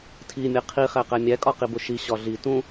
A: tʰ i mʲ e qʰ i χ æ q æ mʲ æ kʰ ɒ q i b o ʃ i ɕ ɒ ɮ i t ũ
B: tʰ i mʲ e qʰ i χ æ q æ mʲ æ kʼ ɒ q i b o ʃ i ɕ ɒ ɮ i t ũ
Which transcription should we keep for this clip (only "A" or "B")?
B